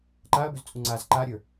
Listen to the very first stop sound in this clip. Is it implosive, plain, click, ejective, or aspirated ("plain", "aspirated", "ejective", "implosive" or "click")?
click